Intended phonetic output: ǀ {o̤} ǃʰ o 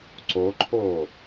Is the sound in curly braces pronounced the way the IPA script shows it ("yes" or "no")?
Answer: no